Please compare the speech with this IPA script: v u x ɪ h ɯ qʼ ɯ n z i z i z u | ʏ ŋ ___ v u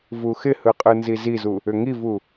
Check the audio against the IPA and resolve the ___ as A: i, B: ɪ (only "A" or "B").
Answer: A